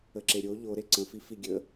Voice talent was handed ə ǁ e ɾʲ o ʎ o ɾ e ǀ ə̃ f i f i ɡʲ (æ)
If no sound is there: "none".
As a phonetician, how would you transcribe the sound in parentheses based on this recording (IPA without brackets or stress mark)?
ə